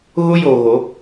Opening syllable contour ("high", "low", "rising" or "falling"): high